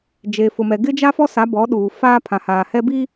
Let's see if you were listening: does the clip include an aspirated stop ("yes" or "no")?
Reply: yes